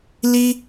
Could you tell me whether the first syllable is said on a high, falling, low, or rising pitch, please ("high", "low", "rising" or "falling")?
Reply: high